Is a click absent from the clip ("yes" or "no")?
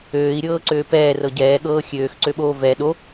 no